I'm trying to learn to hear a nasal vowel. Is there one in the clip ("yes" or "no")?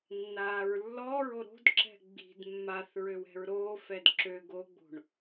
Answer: no